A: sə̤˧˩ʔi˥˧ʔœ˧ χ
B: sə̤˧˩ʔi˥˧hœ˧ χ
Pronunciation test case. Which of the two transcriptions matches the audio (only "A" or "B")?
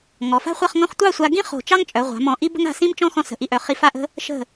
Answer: A